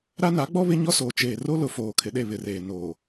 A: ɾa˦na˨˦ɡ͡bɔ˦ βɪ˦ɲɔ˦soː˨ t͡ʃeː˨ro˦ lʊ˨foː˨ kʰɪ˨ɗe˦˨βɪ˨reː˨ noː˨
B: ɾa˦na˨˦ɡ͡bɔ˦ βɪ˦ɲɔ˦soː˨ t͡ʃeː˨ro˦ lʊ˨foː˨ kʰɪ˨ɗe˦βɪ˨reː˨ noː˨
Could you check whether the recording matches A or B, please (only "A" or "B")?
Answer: A